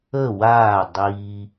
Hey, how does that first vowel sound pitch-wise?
falling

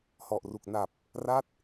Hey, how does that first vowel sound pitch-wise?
low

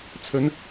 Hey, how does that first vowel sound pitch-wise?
rising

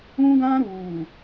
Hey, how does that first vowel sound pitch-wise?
high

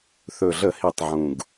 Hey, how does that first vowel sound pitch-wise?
low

